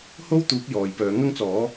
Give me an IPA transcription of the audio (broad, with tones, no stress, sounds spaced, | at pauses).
h o˥ w t̪ uː˨˥ k̚ j ɔː˨ j p œː˨˥ ŋ ɐ˥ ŋ t͡s ɔː˨˥